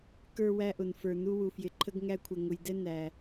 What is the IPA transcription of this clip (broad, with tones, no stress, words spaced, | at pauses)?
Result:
kə˞˦wæ˦ʔʊ˨nfə˞˨ nu˦wu˨fjɪ˨ǃʰə˦ɡ ŋæ˦kʷʰə˨ ŋʊ˨jdɛ˦ næ˨